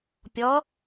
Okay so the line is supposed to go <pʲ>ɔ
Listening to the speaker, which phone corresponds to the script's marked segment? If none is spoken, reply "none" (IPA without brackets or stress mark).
pʲ